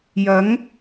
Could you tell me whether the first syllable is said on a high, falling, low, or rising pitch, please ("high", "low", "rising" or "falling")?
rising